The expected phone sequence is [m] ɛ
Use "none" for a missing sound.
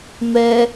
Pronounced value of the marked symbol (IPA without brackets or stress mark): m